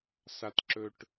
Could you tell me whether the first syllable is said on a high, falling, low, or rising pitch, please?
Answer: low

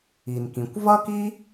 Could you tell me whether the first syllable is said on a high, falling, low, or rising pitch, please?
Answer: low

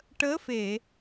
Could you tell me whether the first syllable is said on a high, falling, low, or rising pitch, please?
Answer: rising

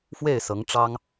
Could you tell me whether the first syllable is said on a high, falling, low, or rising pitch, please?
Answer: falling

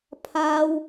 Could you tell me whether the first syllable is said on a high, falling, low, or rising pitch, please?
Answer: high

